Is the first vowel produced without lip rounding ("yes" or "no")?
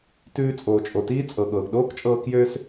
no